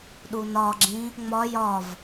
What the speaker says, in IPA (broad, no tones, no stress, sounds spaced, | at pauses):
ɗ u n ɒ ɡ͡ǁ ĩ | ŋ͡m ɒ j ɒ v